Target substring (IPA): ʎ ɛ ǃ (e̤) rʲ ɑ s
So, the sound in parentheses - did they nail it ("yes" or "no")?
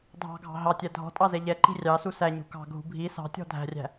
no